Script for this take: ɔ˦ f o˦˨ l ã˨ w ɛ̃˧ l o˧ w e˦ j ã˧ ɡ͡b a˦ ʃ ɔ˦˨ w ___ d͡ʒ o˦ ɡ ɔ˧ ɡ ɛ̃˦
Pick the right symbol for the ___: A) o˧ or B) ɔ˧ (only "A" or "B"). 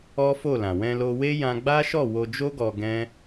A